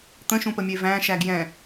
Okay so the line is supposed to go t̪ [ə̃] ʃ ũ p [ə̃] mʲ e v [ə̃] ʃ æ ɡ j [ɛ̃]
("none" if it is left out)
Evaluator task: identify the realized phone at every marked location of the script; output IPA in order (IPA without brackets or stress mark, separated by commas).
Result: ə̃, ə, æ̃, ɛ̃